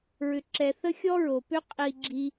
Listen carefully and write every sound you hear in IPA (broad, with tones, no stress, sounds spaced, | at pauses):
ɹ ʏ˦ ǁ ɛ˦ θ ə˦ xʲ ɔ˦ ɹ o˨ p ʏ˦ qʼ i˧ ɡ͡ǁ i˧